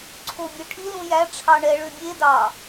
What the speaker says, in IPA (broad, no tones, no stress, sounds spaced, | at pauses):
ǀʰ o bʲ œ ʈʰ i l ũ j æ ʈ͡ʂʰ ɑ ɳ ɛ ɭ ø bʲ e d ɑ